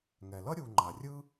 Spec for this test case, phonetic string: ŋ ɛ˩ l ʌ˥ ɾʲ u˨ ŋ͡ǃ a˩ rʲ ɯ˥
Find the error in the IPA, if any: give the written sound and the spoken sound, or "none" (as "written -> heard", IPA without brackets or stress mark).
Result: none